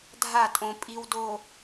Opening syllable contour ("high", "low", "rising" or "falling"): falling